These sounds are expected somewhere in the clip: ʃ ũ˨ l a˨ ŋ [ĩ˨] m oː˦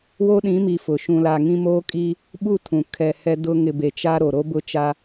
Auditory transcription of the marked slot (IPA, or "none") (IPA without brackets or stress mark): ĩ˦